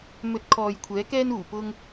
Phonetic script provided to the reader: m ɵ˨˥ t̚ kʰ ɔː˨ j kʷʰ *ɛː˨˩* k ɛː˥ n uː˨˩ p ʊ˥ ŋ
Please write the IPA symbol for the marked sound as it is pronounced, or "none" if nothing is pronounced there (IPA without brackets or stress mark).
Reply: ɛː˨˥